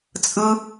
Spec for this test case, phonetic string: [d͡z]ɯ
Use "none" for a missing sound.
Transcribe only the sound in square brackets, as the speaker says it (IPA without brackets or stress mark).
t͡sʼ